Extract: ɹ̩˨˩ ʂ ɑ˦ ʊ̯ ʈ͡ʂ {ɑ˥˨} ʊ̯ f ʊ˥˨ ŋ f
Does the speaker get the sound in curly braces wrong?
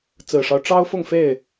yes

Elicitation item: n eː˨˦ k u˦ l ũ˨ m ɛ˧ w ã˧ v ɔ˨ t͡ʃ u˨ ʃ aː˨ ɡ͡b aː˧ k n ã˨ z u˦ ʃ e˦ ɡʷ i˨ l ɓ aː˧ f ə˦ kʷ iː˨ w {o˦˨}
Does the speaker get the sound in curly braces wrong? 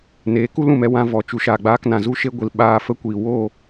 no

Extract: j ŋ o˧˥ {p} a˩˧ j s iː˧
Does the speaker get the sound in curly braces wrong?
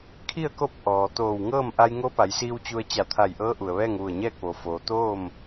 no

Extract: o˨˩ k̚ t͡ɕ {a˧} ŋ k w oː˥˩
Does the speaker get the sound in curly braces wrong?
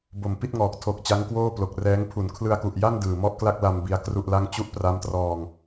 yes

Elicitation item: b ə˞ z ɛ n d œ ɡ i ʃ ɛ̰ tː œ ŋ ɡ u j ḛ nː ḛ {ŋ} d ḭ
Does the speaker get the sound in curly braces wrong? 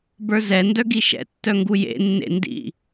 yes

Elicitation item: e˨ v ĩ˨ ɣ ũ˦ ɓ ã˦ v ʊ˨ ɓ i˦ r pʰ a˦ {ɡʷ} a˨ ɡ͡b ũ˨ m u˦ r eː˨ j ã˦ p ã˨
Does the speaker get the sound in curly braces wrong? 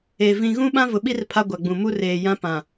no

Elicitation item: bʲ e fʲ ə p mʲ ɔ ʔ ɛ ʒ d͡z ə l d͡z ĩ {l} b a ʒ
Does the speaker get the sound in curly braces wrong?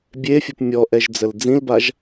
no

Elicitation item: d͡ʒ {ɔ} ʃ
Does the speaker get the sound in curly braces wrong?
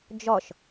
no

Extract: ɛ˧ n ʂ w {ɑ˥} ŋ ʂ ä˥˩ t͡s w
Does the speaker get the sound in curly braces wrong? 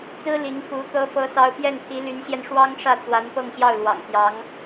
no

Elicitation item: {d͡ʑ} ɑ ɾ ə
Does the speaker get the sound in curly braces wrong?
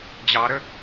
no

